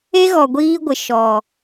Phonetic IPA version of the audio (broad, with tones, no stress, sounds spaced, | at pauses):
e˦ ɣ ɔ˨ ɡʷ iː˦ ɡʷ ɪ˨ ʃ ɔ˨